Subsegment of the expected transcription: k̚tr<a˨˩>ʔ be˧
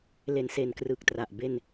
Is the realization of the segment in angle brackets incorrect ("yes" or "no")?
no